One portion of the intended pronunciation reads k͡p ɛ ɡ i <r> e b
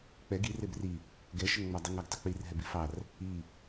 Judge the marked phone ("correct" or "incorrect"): correct